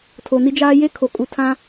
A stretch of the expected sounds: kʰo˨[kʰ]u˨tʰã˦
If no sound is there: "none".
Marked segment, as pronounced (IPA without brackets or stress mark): kʼ